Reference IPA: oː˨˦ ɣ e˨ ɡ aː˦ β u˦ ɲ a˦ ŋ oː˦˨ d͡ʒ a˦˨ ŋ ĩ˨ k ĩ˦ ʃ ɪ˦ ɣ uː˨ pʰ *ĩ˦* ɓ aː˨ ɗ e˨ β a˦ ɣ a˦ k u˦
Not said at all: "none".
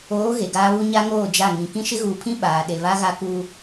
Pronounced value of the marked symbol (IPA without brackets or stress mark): ĩ˦